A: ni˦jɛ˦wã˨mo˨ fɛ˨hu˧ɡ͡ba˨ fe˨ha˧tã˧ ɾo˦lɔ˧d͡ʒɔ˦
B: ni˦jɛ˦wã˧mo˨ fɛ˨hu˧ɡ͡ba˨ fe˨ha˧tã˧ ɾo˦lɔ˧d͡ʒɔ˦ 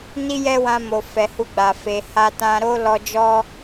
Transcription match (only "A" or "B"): B